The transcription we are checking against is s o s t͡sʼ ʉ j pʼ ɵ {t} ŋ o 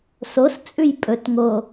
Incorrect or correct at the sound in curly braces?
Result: correct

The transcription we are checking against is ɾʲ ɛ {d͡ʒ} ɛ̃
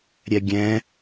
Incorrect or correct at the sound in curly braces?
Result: incorrect: ɡʲ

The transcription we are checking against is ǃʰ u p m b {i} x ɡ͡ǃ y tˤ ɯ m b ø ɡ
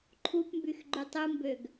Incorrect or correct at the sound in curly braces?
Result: incorrect: y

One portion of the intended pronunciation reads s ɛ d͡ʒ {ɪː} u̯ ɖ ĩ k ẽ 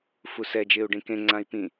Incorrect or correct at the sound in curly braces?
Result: correct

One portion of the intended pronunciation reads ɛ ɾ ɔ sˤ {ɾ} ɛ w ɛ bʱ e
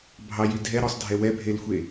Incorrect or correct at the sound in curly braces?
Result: incorrect: dʱ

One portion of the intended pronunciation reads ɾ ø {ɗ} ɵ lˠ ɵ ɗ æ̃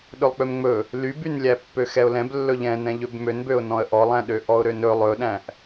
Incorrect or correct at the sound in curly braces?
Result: incorrect: n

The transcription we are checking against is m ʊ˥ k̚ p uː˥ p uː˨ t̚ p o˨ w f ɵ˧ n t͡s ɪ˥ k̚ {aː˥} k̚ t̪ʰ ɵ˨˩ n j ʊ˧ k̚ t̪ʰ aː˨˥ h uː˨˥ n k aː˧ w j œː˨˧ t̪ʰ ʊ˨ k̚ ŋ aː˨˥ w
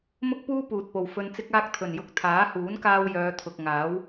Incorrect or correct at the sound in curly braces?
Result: correct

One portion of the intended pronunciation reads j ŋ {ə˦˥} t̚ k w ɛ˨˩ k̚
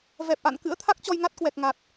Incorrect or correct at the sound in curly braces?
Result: incorrect: a˦˥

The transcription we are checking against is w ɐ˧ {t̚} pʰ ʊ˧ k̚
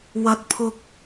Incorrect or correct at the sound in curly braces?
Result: correct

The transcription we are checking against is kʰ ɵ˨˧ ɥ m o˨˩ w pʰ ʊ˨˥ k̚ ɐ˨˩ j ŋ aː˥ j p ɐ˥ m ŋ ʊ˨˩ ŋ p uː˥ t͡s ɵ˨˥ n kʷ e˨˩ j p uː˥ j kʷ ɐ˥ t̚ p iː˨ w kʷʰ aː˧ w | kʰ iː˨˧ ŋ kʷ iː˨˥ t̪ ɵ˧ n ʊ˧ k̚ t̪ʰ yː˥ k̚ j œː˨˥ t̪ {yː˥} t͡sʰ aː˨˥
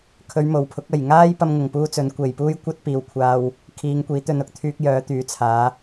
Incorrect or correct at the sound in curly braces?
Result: incorrect: yː˨˥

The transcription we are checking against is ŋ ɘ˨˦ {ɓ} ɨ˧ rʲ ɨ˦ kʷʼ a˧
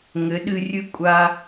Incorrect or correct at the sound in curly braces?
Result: incorrect: ɗ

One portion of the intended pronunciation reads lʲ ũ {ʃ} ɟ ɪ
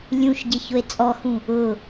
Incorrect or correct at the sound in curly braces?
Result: correct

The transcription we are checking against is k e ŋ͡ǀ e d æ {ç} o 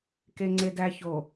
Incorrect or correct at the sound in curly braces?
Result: correct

